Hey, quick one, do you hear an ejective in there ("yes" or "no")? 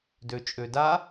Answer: yes